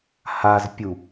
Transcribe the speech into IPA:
h a z pʲ u

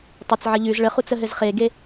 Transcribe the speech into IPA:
tˤ ɘ t͡s ʕ ə ʎ ʉ z ɭ ə χ u t͡s ə ɦ ɘ z χ e ɡ e

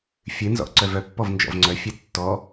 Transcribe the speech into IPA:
fʲ ɨ n z ɔ̰ ʔ ǀ œ v œ pː ɔ v n d͡ʒ ɔ̰ v ŋ͡ǀ œ fʲ ɨ tː ɔ

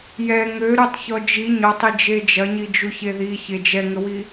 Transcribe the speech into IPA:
j ɛ ŋ ø ɾ u tˤ ç ɔ d͡ʒ i ɲ ɔ tˤ i d͡ʒ e d͡ʒ ɐ ɲ i d͡ʒ u ç e ð i ç e d͡ʒ ɛ ŋ ə w i

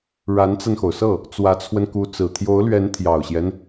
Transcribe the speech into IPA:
ɻ a˧˥ n t͡s a˧ n x o˩ ʊ̯ s ɤ˥˩ | t͡s w ä˧˥ t͡sʰ w ə˧ n k u˧˥ t͡s ɹ̩˨˩ t̪ʰ j o˧˥ ʊ̯ l ɥ ɛ˧˥ n t̪ʰ j ɑ˨˩ ʊ̯ ɕ j ɛ˦ n

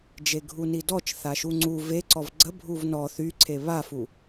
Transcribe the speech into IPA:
d͡ʒ e ɡʱ u n i d ɔ t͡ʃ θ a ʃ u ŋ͡ǀ u v e ǀ ɔ v ɡ͡ǀ ə bʱ u v n ɔ θ y ǀʰ e β a f u

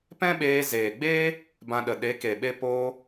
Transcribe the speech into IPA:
p ɛ̃˦ ɓ eː˧ z eː˨ ɡ͡b eː˦ | b ã˧ ɗ ə˨ ɗ e˨˦ k e˨ ɓ e˦ p oː˧

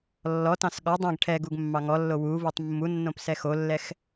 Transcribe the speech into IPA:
lː ɔ t ɑ̃ s ɠ ɔ dˤ ɛ̃ ɡ ʈʰ ɛ ɡ u ɡ mː ɑ ŋ ɔ lː o w u v u tˤ mː u nː õ p s ɛ x o lː ɛ x

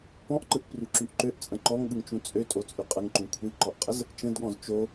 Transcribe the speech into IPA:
p ɔ̃ ʔ ǃ ɯ ʔ p r y ǁ y ʔ ǃ ø ʔ t͡sʼ ə̃ ǃ ɔ ŋ ɠ ɯ ŋ t͡ʃ ũ t͡sʼ ø tʼ o t͡sʼ y qʼ ə ŋ ǃ ũ kʷʰ i ǃ ɔ ʔ qʼ ə z | t͡ʃ ə̃ d ɠ ɔ̃ z t͡ʃ o

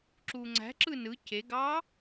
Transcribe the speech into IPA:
ǁ uː ŋ͡ǀ æ̤ ǁ ɯ n ɯ c e ɡ ɑː

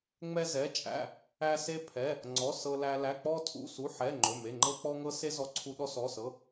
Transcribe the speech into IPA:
ŋ͡m ɛ˥ z ɛ˧˥˧ t͡ʃʼ æ̰˧˥˧ | æ˥ s e˥ pʰ ɛ˧˥˧ | ŋ͡ǀ ɔ˧˥˧ s ɤ˥ l æ˥ l æ˧˥˧ k͡p ɔ˥ tʰ ṵ˧˥˧ s u˧˥˧ ħ ɛ˧˥˧ ŋ͡ǃ ɵ˧˥˧ m e˧˥˧ ŋ͡ǃ ɤ˥ k͡p ɔ˥ ŋ ɤ˥ s e˥ z ɔ˥ ǀʰ u˥ ɗ ɔ˥ s ɔ˧˥˧ s ɤ˧˥˧

